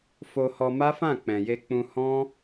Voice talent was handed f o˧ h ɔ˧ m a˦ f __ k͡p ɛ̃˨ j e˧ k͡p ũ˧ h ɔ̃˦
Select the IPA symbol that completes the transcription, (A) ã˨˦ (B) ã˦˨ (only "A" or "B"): B